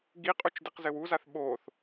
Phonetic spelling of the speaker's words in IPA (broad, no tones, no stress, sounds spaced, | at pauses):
ɡ i qʼ u t͡ʃ d i q z ɘ w u z a θ ɓ o θ